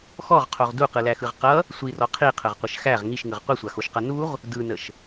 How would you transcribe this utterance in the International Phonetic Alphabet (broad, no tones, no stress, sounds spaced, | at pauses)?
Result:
x ɔ ʁ qʰ o ʁ d u q ɯ l æ x ɯ ʁ q ʌ | sʷ i r ɔ qʰ i qʰ ə ʁ qʷ ə ʃ x æ ʁ ŋ i ʃ ŋ ɯ ʁ qʷ i sʷ a x o ʃ q ʌ n u ʁ | d ɯ n ə ʃ